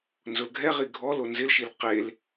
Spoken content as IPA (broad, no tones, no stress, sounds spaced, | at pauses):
n z ʊ l ɡʱ ɛ ʁ i ɡʱ ɔ l o n z ɪ l ʃ i l q e l